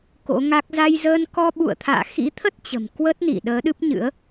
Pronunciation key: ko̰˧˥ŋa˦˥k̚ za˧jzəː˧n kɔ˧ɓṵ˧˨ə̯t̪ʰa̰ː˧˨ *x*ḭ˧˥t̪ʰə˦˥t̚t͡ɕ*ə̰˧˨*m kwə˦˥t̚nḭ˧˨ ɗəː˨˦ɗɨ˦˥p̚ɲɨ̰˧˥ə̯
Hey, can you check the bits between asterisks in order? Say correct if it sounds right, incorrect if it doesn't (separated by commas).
correct, incorrect